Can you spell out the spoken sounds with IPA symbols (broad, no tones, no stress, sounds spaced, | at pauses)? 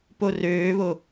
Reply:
p o r øː β o